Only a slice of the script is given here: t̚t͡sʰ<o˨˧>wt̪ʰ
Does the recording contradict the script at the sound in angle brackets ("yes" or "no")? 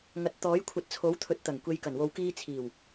yes